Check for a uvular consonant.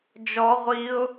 present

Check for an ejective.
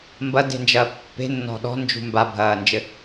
absent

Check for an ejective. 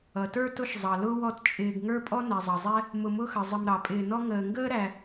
present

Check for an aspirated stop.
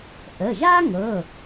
absent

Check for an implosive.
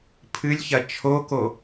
absent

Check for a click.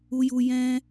absent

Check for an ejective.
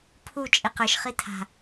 present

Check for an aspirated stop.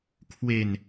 present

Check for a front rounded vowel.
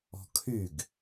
present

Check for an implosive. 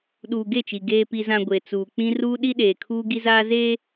present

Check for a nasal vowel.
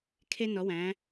present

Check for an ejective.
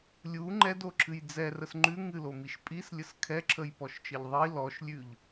present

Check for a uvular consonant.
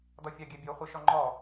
present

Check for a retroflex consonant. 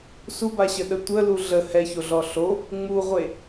absent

